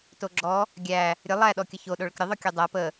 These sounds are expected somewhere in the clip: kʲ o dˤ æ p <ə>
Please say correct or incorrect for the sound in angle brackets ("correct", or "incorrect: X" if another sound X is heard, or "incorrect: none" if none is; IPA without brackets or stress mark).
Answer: correct